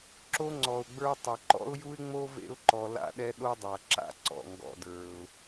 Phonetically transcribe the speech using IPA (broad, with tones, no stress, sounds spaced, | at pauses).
ǁ o˥ ŋ͡ǀ ɔ˩ ʊ̯ ɡ͡b ə˞˦ tˤ ʌ˩ ǃ ɔ̰˥ ʊ̯ j u˥ ɪ̯ ŋ͡m o˥ v ḛ˦ ʊ̯ ǃ ɔ˨ l a̰˥ ɗ ɛ˥ ɗ o˥ dˤ a˩ ǁ a̰˥ ǀ ɔ̰˩ ŋ ɡ ɔ̰˨ d ə˞˩ ʊ̯